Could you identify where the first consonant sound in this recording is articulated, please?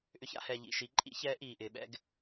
glottal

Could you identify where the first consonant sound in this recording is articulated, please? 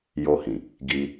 palatal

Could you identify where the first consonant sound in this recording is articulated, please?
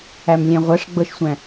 labial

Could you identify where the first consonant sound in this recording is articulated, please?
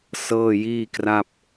alveolar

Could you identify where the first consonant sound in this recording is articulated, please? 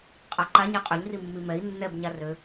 uvular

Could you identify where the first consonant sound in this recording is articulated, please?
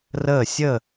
alveolar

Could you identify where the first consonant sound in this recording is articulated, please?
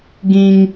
velar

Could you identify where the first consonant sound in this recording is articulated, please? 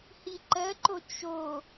glottal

